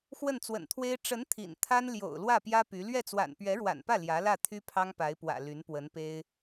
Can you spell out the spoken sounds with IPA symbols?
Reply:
xwə˥˩nt͡swə̰˨˩nt̪ʰwe˥ɪ̯ ʈ͡ʂə˧˥n t̪ʰḭ˨˩nt̪ʰa˥n ljo̰˨˩ʊ̯lwä˥˩ pjä˥py˧˥ lɥɛ˥˩t͡swa̰˨˩n pɥɛ˧˥ɻwa̰˨˩npä˥˩ ljä˧˥lä˥˩ t̪ʰy˥pʰɑ˥ŋpa˧˥ɪ̯pwä̰˨˩ ly˧˥n pwə˧˥npe˥ɪ̯

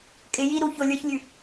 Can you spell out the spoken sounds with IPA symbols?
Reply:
kʼɪjiɾu çolʲə˞çlʲʉ

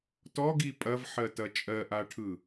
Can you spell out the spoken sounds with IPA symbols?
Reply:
tɔɡi pʼɐvħɜtɐ t͡ʃʼɜʔaʈʰɯ

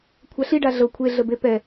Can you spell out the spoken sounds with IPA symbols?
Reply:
kʷʰaɬiɖa ɮɤ kʷʰeɮəbe pɛ

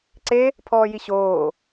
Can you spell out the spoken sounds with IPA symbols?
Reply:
ǀe | pʰɔːjiɕoː

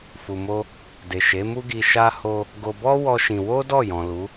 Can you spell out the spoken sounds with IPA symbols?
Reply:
fu˧mo˦ | de˨ʃe˨˦mu˦ɡi˧ ʃa˦ ho˧ | ɡo˧bɔ˦ wɔ˦ʃĩ˧ wo˦ dɔ˦˨jɔ̃˨ lu˨˦

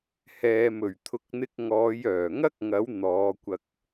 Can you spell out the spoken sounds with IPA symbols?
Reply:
hɛː˨mɵ˨˩ɥt̪ʰʊ˨˥k̚n̪ɪ˧k̚ ŋɔː˨˧jœː˨˩ŋɐ˥k̚ ŋɐ˨˥w n̪ɔː˨˧kʷɐ˧k̚

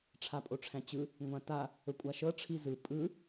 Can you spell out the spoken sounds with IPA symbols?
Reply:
ʈ͡ʂʰapʼoʈ͡ʂʰæ̃t͡ɕɯ | ŋʷãta | ɵkʷʼaʃɤ ʈ͡ʂʰizɯ pʼɯ

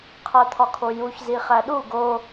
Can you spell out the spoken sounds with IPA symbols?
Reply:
qʰæt̪ʰɒkʰojuç ziχæɗu ɡo

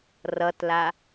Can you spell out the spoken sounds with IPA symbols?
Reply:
rʌtla

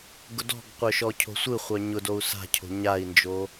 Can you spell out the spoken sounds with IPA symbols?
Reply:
ɡʊdɔ̤ɡqʷœ ʃɔcʰo̤sʷɯχʷœ ɲʊdou̯ sa̤cʰo̤ ɲai̯nd͡ʒo

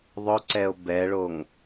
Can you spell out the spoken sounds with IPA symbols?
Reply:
ðˤʊǀɛo̯ bɛɭoŋ

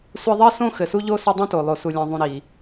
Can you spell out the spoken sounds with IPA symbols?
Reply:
sʷe˦ðˤi˥sõ˥ xɘ˨su˥ʎo˥sɘ˦ dˤõ˥to˨ lˠo˨su˨lʲã˨ðˤũ˨ ɾi˨

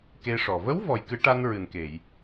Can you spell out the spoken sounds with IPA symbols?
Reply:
ke˧ʂɔ˨˩ və˧˥w vɔ˨˩jkɨ˨˩˦ ʈa˧n ɹɨ˨˩nke˨˩˨j

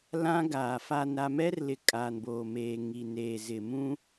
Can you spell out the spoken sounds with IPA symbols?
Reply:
lã˦ɡaː˨ fa˨nɾa˨ mɛ˦rlɪ˨ kʼa˨nboː˨meː˨ ŋi˨neː˨zɪ˨mũ˦

